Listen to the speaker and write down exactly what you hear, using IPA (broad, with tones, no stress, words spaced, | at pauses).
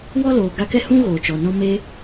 wɔ˦loː˨ ɡa˧kɛ˦ hũ˦ ɣoː˨t͡ʃɔ˨nɔ̃˦ me˦